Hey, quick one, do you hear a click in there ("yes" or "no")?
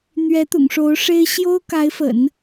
no